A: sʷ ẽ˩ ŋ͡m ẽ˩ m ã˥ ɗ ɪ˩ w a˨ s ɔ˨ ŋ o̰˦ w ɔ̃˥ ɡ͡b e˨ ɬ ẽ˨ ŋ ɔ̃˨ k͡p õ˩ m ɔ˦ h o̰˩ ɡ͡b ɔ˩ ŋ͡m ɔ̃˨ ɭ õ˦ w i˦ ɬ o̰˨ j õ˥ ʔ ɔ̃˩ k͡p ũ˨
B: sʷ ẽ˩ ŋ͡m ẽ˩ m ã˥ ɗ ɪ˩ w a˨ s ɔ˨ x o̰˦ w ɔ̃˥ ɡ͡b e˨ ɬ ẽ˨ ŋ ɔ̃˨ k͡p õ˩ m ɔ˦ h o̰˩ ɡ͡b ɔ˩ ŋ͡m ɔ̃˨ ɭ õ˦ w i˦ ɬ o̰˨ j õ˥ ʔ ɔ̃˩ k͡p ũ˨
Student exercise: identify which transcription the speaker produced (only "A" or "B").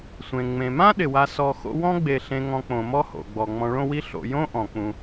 B